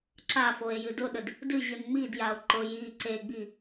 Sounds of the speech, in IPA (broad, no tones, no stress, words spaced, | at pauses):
ǁafoe̯ jɨdʊɗəd | dɨʑɨn ŋ͡midjao̯ ǃʊ ji ǀeɡ͡bi